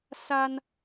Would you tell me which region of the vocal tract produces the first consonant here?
tongue tip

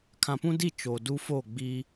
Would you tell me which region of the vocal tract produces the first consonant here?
velum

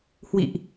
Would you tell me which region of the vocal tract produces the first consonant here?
throat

